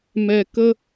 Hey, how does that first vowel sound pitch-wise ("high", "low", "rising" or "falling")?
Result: low